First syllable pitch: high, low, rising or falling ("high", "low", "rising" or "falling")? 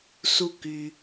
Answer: low